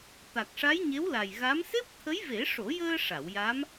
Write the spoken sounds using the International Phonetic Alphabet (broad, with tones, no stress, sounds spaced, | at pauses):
t̪ a˨˩ k̚ ʂ a˧˥ j ɲ e˧˥ w l a˨˩ j ɣ a˧˥ m s e˦˥ p̚ t̪ʰ ə˧˥ j v e˨˩˦ ʂ o˨˩˦ j əː˧ ʂ a˨˩˨ w j a˧˥ m